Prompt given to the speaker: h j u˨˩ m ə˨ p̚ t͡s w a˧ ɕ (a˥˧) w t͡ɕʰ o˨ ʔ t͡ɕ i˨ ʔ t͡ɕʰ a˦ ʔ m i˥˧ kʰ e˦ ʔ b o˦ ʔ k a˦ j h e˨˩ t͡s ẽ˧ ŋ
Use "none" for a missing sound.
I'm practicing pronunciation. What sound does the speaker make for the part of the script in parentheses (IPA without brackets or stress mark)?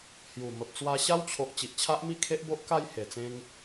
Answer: a˦